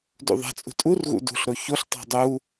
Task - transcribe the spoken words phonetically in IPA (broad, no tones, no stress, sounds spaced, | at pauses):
d ṵ ðˤ a̤ t͡sʼ ṳ tʼ u r ɣ ṵ d ṳ ɬ ɾ o ç o ɬ tˤ a̤ dˤ u